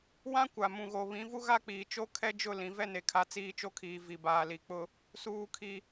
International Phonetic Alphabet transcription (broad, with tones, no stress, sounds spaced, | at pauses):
w ã˦ kʷ a˨ m ũ˨ ɣ o˨ β ĩ˨˦ v u˦ ɣ a˦ k͡p iː˨ t͡ʃ o˦ kʰ ɛ˦ d͡ʒ ʊ˦˨ l ĩ˨ v ɛ˦ n e˨ kʰ a˨ t͡s iː˦ t͡ʃ o˦ kʰ iː˨ v i˨ b aː˨ l i˨ k͡p ʊ˦ | s uː˦ kʰ i˦